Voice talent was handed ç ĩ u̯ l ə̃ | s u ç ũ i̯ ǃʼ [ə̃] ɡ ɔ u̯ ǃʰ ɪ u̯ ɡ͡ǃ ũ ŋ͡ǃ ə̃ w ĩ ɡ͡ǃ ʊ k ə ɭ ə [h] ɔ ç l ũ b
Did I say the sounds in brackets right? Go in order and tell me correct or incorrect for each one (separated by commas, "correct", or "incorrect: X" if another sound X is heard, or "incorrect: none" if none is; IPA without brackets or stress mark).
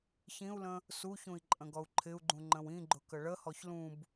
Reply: correct, correct